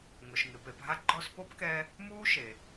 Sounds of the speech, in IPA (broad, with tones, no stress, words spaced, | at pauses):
ŋʊ˩ʃŋɪ˩pe˨pɦa˥ ɡ͡ǃɔ˦spo˥pkɛ˦ | muː˥ʃe˩